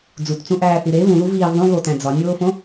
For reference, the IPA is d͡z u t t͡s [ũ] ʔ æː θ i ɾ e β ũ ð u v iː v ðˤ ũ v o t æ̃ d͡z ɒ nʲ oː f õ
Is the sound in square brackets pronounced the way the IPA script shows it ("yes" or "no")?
yes